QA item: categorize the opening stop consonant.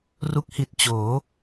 plain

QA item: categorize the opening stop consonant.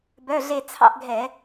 plain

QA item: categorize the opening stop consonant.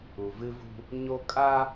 ejective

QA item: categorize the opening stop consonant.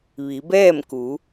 plain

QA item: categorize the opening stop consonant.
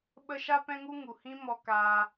implosive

